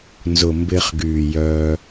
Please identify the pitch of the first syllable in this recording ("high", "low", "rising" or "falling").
low